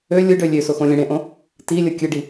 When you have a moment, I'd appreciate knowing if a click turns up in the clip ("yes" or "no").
no